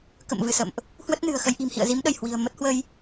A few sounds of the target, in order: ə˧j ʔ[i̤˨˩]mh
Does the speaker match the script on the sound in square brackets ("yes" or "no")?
yes